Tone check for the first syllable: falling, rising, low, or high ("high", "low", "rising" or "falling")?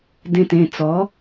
low